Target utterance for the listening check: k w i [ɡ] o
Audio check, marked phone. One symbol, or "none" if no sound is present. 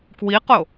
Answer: q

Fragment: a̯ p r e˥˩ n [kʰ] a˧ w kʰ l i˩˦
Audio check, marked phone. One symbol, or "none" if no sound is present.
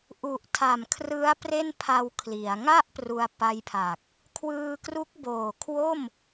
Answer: pʰ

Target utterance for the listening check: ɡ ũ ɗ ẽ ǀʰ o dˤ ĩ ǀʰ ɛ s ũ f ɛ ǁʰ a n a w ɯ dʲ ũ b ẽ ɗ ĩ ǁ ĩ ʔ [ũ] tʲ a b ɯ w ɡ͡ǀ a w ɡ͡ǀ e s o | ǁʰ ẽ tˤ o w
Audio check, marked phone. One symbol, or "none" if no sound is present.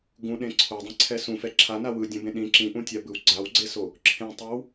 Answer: ũ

